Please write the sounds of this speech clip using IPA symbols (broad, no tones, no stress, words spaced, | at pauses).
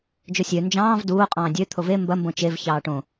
d͡ʒosʲø nd͡ʒɑ̃ːv duːo̯ qʼɑ̃ːdʲø t̪ʰove mbɐ mbõt͡ʃev çɑːʈõ